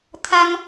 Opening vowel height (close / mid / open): open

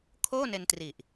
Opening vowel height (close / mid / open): mid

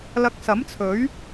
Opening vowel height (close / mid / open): open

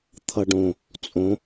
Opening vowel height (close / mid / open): mid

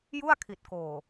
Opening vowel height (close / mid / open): close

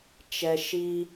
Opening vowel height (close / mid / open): mid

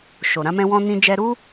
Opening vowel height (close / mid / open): mid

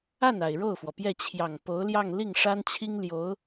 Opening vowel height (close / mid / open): open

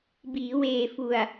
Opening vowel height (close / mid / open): close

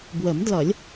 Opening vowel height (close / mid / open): mid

